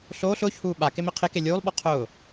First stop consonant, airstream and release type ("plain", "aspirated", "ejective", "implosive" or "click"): implosive